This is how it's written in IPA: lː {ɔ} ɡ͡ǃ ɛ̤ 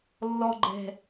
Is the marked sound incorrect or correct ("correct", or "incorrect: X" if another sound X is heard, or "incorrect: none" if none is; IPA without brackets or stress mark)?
correct